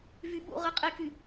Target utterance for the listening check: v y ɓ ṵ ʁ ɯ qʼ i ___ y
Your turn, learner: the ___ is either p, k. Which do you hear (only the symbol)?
k